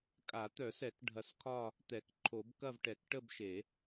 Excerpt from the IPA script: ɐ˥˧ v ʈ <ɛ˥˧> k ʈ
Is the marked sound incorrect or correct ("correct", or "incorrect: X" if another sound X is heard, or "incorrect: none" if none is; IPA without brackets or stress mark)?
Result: incorrect: ɛ˨˩˦